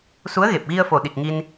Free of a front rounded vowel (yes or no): yes